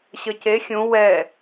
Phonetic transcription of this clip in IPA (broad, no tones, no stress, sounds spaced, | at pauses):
ɕ ʌ c e xʲ ũ w ɛ